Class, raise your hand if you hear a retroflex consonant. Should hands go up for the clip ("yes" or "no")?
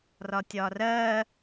no